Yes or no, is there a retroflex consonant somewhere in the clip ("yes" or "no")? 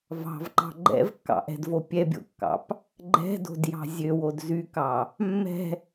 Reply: no